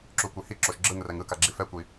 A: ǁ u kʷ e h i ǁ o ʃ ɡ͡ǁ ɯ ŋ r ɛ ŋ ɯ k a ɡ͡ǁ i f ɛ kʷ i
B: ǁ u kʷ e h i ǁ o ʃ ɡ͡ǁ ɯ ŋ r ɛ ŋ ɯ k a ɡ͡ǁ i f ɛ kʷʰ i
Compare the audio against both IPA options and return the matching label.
A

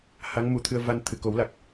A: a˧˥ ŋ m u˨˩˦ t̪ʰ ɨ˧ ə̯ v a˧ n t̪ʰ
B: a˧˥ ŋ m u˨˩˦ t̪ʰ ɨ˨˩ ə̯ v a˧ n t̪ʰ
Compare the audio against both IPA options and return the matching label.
A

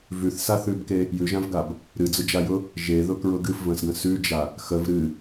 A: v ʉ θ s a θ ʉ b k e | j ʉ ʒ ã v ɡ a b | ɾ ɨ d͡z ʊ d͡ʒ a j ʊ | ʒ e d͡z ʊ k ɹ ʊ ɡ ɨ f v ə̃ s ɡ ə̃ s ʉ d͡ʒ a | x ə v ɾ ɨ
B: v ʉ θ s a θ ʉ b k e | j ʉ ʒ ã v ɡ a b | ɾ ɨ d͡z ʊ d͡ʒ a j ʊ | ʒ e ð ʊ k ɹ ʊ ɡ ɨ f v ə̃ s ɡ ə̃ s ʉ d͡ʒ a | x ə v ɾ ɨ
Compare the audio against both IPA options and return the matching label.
B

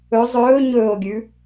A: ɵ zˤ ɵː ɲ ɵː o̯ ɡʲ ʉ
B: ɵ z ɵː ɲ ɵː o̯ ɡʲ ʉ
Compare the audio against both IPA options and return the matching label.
A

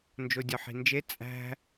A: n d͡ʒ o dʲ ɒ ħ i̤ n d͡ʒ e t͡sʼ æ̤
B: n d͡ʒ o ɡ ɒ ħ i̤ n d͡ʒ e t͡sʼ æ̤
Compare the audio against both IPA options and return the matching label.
A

